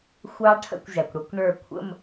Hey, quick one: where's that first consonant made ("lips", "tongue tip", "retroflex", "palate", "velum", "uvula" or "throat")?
velum